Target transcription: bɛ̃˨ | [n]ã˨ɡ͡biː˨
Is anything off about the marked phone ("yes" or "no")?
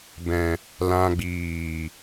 yes